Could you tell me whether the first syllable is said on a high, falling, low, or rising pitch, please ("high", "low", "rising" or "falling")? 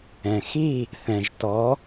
low